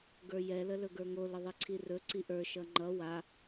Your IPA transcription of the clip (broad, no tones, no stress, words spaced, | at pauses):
ɡə˞jɛlə lɵɡə˞ŋo ləðˤiǀʰirɵ ǀiʔə˞ ʃʌŋ͡ǃʌ wa